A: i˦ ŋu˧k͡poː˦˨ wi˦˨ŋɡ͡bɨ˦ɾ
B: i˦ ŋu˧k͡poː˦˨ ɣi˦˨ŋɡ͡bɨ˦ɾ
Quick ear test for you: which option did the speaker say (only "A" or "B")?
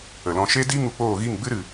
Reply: B